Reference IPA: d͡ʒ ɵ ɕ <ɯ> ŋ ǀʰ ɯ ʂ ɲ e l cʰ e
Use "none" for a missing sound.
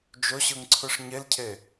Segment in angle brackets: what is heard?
ɯ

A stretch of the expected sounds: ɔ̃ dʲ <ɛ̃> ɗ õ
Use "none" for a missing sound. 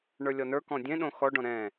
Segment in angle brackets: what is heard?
ẽ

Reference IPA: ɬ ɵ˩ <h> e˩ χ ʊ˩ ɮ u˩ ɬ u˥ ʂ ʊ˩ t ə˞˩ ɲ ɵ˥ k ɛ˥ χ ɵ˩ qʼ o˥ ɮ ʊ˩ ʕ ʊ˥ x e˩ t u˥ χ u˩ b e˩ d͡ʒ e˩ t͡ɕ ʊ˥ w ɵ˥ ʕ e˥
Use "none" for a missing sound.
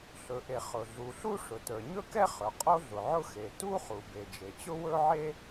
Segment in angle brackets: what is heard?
ʔ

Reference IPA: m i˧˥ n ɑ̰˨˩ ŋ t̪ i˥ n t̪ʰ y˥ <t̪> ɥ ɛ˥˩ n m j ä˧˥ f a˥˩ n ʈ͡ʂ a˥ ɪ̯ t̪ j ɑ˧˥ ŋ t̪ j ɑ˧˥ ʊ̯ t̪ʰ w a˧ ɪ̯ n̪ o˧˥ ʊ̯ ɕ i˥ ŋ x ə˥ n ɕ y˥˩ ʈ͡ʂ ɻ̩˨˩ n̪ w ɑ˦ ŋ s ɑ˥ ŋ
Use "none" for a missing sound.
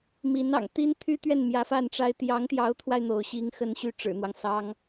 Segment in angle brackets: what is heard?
t̪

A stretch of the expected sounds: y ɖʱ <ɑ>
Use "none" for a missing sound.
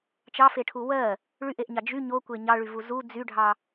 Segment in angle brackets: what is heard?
ɑ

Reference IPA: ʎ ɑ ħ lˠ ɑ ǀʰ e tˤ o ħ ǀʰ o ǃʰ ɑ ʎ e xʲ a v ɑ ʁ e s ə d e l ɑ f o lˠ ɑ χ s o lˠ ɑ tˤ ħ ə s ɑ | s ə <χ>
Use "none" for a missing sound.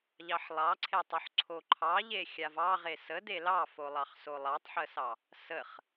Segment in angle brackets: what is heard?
χ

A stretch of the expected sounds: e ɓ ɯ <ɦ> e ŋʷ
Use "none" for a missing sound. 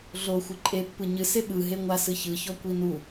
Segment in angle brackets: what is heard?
ɦ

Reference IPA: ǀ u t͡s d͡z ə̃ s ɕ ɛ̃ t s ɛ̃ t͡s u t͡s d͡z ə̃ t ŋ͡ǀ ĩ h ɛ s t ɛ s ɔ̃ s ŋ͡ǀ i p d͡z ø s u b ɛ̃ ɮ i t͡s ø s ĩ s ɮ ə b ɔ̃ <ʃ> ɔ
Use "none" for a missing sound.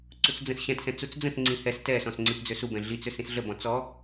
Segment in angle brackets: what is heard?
t͡s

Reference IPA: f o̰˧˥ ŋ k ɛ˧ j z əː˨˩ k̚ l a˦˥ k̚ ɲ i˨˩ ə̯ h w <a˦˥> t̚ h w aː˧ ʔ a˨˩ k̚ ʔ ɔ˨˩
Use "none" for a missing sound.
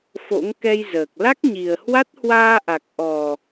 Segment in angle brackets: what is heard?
a˦˥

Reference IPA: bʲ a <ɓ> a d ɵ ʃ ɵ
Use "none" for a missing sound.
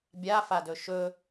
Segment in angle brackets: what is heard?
f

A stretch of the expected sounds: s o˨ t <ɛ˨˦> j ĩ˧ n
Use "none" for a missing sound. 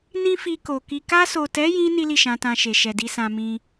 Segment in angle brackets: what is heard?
ɛ˨˦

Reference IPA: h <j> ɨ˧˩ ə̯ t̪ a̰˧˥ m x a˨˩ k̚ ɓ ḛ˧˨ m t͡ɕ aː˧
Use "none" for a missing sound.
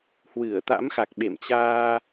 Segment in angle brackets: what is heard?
w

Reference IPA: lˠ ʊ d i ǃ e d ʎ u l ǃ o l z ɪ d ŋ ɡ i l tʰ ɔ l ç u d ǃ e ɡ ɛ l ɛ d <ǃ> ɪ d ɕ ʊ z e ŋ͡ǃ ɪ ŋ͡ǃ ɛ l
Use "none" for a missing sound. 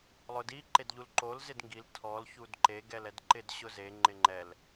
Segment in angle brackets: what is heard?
ǃ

